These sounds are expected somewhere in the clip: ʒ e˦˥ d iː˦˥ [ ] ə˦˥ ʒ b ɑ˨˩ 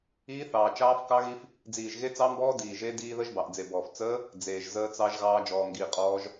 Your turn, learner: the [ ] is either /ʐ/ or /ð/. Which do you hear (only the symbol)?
ð